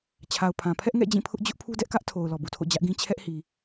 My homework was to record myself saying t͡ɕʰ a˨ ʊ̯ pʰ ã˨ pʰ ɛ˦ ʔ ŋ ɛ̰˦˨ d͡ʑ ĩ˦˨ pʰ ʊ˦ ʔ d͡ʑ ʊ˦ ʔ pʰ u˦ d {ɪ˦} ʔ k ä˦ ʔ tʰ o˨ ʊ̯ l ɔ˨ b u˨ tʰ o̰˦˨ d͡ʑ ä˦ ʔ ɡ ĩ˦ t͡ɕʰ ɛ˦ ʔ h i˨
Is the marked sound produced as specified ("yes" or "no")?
no